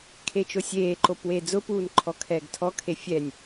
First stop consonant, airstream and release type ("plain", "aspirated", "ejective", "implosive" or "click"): aspirated